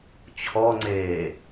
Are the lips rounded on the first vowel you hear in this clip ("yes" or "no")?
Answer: yes